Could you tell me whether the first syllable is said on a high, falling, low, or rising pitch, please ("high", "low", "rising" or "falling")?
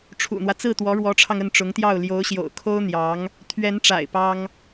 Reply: low